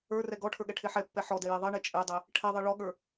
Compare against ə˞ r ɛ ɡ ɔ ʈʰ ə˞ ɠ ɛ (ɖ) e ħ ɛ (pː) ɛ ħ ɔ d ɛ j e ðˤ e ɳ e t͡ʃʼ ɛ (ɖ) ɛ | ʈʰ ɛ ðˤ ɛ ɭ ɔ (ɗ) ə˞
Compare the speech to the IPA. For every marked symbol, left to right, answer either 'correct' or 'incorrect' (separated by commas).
incorrect, correct, incorrect, incorrect